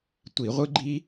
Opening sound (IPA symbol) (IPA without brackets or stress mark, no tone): tʷ